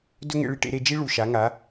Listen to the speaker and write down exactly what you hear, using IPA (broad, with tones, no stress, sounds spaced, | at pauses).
d ɵ˦ ŋ ḛ˧ ɭ i˧ ʈ ḛ˧ ɾ e˧ d͡ʒ i˦ ɭ u˨ ʃ a˨˦ ŋ a˨˦